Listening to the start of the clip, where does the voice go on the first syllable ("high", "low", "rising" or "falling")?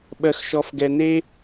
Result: high